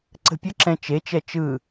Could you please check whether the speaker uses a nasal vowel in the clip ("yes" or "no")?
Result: yes